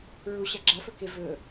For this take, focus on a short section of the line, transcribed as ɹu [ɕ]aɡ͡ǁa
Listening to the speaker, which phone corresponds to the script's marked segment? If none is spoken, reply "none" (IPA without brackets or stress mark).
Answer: ɕ